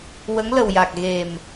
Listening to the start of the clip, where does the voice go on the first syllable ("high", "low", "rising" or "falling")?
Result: rising